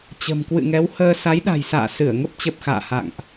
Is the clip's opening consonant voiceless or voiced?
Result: voiceless